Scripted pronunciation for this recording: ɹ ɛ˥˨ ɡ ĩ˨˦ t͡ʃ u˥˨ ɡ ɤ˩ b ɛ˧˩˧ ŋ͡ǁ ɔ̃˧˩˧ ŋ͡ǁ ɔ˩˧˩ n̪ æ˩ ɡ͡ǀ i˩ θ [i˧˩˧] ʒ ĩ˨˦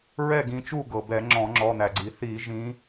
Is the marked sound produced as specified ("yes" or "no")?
yes